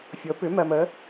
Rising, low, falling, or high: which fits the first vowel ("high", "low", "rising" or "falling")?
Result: rising